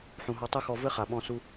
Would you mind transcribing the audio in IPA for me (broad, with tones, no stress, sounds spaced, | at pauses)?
ħ ũ˨ ɦ ɔ˧ tˤ ɨ˦ x ɔ˧ v ɘ˦ χ a˨ ɓ ɔ̃˧ s u˧